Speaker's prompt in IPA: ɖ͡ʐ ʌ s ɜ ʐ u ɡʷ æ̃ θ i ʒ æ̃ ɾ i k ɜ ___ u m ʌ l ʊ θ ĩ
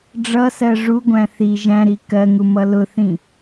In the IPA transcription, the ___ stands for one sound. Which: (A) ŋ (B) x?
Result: A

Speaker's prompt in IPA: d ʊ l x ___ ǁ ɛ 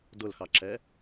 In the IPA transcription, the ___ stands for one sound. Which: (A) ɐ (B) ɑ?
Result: B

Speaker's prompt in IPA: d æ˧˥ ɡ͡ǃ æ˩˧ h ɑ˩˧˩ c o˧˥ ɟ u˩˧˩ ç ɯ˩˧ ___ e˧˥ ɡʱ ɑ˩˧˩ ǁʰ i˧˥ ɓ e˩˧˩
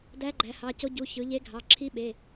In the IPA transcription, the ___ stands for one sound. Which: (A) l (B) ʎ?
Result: B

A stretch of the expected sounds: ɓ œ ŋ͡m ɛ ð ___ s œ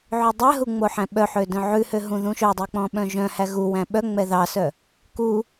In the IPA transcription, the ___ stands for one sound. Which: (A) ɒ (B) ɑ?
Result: B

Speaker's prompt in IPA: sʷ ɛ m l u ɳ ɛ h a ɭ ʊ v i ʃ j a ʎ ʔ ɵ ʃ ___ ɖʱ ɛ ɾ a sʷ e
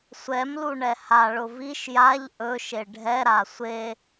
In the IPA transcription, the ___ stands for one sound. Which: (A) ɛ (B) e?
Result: B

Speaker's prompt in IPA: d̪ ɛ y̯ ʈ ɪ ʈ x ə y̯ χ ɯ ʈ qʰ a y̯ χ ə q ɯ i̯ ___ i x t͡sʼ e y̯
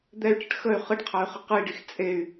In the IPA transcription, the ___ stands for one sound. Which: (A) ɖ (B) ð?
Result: A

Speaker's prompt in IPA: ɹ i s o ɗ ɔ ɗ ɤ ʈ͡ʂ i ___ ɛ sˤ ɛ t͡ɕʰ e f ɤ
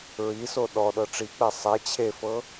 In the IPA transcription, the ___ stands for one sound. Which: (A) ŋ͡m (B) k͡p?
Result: B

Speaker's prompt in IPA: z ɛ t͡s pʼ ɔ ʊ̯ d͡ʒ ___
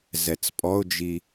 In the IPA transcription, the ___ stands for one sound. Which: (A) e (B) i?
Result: B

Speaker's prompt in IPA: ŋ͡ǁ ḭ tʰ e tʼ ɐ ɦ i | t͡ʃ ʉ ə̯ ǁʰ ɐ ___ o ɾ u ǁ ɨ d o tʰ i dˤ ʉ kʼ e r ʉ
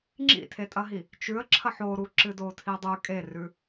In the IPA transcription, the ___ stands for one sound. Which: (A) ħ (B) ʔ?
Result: A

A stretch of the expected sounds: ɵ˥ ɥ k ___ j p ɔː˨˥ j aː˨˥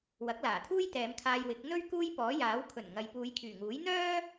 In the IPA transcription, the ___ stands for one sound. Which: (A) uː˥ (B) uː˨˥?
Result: A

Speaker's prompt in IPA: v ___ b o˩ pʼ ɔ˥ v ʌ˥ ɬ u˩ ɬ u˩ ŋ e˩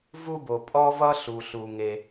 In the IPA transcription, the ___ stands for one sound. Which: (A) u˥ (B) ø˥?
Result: A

